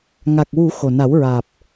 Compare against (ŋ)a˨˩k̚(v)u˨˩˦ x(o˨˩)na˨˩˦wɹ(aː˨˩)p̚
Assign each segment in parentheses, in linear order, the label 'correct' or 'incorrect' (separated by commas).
correct, incorrect, correct, correct